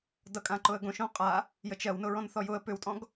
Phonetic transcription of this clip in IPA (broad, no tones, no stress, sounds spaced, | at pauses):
d ʌ kʼ ã ǃ ʊ ə̯ ɡ õ ʃ õ qʼ a | j ə t͡ʃ ɜ w n ʊ ɹ ɔ̃ n θ ɔ j ʊ ə̯ p ʏ w tʼ ɔ̃ ɡ